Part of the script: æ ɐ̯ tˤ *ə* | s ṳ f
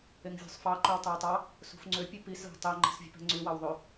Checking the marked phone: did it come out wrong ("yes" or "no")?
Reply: yes